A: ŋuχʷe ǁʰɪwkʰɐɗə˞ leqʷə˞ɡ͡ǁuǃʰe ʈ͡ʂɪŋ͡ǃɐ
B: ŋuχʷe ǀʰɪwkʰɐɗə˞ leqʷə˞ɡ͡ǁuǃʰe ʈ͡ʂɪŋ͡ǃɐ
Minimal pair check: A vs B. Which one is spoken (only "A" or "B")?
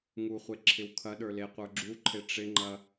A